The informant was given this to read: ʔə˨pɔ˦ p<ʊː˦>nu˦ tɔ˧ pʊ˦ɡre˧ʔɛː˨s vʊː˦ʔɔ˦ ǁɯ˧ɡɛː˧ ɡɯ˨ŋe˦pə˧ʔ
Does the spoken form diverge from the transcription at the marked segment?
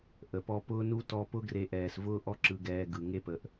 no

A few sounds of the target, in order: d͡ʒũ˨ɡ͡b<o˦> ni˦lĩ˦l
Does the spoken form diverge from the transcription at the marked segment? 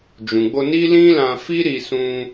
yes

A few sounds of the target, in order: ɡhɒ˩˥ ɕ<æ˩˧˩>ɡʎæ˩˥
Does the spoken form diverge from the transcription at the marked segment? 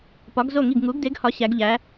yes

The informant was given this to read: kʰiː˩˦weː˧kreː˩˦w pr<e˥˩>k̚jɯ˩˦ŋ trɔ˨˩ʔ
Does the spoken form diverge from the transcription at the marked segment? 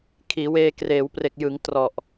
yes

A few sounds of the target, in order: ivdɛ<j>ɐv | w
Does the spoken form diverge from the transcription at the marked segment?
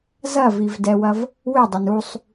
yes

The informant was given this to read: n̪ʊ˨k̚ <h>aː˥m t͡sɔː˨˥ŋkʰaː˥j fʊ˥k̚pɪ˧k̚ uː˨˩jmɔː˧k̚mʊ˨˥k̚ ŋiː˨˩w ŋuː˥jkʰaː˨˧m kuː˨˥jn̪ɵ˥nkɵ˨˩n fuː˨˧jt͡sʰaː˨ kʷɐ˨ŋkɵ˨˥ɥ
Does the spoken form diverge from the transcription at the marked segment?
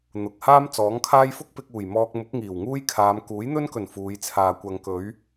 no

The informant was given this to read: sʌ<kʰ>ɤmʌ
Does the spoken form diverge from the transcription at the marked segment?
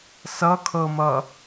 no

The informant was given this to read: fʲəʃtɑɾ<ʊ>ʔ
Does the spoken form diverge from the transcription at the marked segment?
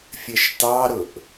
no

